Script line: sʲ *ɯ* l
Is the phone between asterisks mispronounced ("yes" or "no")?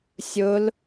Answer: yes